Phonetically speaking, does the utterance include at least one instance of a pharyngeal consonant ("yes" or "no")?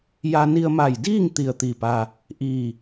no